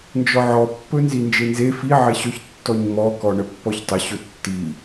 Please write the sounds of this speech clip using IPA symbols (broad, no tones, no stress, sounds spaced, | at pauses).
n d͡ʒ ɔ ʕ ɔ pː ɵ n z i n d͡ʒ e n z e f i ʕ e ɕ ɵ ç tː ɔ ɲ m ɔ k ɔ ɳ ə pː ɔ ç tˤ ə ɕ ɵ tː i